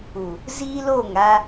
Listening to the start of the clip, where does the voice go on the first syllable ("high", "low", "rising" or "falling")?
low